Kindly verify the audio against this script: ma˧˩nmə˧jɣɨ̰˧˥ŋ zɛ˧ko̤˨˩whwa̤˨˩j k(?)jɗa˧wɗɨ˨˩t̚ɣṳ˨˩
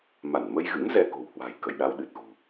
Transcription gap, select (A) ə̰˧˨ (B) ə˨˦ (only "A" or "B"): A